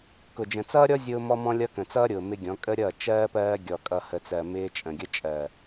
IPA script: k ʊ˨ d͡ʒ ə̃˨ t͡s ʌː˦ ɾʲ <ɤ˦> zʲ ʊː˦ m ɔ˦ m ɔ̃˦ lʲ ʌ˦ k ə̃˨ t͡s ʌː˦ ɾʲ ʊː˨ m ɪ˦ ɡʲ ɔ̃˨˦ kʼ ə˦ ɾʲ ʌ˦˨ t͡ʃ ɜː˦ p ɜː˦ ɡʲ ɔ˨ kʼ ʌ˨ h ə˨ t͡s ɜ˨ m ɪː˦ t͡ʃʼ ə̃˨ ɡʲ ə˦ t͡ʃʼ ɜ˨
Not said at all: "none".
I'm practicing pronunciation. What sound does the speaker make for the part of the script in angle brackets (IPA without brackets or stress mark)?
ɔ˦